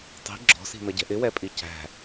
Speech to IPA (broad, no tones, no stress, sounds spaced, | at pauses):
tˤ i̤ ɡ͡ǁ ɔ̤ s i̤ n ʌ ɟ ɛ̤ ʔ ɪ w ɛ pʼ i c æ̤